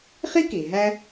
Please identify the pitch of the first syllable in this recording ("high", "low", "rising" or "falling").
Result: high